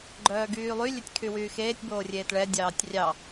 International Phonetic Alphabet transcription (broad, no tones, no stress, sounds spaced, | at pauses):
ɡ͡ǃ œː ɡ yː lˠ y lʲ e tʲ kʰ y w yː x eː tʲ b oː rʲ eː t ɭ ɛ dʲ ɑː tʲ rʲ ɑ